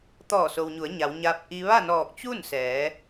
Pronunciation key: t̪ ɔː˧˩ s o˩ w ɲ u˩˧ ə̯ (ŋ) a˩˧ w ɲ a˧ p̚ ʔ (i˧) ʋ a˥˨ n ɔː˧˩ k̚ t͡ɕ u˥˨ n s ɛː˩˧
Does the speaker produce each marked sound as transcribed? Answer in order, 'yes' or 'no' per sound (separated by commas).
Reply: no, yes